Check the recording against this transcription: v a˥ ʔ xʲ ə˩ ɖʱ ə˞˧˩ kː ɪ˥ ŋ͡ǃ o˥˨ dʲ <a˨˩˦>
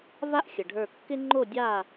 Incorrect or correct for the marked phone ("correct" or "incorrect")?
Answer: incorrect